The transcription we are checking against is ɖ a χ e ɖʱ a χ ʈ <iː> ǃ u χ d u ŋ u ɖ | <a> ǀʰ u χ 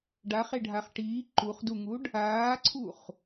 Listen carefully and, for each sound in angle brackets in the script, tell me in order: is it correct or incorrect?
correct, incorrect

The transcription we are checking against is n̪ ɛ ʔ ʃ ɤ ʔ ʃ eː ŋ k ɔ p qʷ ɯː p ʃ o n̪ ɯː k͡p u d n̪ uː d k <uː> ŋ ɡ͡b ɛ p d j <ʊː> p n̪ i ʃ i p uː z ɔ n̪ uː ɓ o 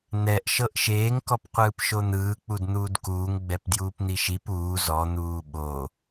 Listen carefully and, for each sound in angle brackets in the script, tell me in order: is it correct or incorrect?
correct, incorrect

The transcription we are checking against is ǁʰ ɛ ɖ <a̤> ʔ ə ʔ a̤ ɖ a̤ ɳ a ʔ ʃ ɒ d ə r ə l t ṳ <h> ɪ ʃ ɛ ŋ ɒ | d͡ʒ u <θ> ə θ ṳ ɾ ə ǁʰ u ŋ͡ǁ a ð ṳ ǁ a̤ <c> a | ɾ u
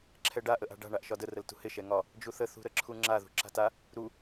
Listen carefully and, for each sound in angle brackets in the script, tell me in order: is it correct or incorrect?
incorrect, correct, correct, incorrect

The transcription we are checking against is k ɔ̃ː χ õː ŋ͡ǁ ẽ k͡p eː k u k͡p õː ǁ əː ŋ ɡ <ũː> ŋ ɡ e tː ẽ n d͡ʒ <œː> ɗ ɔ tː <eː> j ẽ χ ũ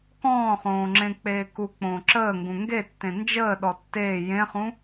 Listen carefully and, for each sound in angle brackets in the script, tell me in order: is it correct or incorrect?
incorrect, incorrect, correct

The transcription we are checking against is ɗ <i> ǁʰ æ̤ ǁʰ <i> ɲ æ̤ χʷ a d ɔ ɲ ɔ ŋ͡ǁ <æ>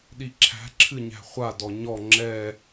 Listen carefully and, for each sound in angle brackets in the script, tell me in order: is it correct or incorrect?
correct, incorrect, incorrect

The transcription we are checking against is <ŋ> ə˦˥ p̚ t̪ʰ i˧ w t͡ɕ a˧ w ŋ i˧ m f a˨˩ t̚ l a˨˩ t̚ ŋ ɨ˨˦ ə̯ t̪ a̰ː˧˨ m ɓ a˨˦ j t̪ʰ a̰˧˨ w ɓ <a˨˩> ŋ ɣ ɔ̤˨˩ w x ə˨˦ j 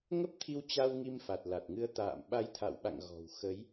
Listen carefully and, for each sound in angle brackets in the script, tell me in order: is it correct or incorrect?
correct, incorrect

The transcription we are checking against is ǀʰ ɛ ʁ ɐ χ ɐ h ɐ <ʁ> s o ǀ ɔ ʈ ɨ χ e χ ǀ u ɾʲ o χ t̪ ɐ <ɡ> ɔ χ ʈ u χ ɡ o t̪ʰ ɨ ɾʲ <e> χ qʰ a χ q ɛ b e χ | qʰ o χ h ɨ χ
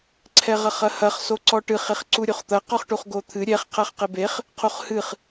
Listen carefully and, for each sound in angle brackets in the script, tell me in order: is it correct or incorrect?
incorrect, incorrect, incorrect

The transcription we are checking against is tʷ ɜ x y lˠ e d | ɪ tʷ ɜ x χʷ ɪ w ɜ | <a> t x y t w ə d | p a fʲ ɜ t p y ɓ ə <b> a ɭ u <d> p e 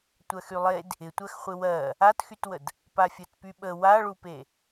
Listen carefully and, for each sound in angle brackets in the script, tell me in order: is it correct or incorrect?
correct, incorrect, incorrect

